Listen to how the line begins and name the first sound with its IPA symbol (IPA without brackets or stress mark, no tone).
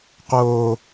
q